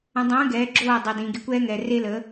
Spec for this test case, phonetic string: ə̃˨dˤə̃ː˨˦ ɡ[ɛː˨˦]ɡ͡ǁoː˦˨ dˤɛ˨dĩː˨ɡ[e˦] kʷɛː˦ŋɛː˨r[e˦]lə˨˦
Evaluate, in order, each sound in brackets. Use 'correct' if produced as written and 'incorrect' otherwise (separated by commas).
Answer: correct, correct, correct